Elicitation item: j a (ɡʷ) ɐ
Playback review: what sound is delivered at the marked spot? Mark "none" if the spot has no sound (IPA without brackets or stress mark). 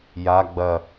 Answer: ɡ͡b